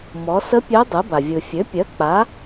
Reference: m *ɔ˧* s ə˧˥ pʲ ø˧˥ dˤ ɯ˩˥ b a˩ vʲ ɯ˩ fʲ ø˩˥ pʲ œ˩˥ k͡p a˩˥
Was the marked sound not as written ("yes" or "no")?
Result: yes